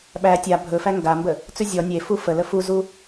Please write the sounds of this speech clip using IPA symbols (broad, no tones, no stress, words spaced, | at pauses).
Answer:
ɓæ tʲa bʱɵfæ ŋɡambə | t͡sʉzʲɔ nʲe fufələ fuzu